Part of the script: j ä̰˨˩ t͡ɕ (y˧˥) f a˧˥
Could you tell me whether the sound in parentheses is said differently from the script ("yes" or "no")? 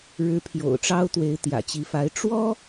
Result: yes